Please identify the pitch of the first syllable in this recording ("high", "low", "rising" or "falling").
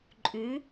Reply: rising